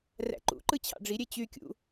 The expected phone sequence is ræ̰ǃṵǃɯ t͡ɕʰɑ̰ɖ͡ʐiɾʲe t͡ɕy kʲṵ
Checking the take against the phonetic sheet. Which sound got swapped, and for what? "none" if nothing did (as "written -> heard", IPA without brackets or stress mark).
none